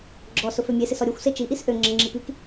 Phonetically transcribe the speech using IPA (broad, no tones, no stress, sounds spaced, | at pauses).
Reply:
ɡ͡ǁ ɔ s ʊ f ø mʲ e s ɪ s ɔ ɾʲ o xʷ s e t͡ʃ i ʔ i s ʔ ø ŋ͡ǁ ə ŋ͡ǁ i p i k